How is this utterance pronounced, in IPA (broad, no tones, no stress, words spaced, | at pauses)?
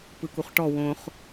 pɯkuχʈɔ wõχ